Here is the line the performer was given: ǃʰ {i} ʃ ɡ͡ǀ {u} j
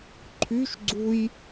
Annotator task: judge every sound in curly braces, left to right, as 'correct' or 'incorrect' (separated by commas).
incorrect, correct